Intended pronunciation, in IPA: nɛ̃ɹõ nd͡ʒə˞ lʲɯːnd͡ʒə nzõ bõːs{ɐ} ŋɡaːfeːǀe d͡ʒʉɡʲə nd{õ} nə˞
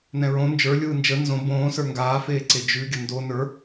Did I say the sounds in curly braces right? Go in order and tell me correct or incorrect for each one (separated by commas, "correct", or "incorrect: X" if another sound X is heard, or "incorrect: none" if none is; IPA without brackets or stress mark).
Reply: incorrect: ə˞, incorrect: o